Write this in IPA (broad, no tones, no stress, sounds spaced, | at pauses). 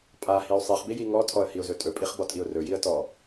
pʼ a h i ʊ̯ sˤ i χ b i j i ŋ ɔ tʰ ɔ ə̯ h i ʊ̯ z ɵ tʼ ɵ pʼ i χ b ɔ tʼ i ʊ̯ r ɵ j i ə̯ t ɔ